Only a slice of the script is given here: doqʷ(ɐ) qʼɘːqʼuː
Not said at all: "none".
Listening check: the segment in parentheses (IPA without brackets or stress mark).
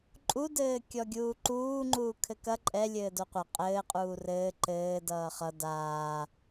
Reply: ɐ